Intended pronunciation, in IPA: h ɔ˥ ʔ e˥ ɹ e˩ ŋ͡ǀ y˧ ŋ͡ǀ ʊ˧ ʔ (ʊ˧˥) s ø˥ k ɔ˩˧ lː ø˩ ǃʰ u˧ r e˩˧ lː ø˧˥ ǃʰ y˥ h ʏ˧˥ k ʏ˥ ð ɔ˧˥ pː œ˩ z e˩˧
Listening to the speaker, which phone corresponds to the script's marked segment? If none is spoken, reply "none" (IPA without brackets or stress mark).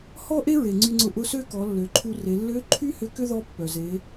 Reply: ʊ˧˥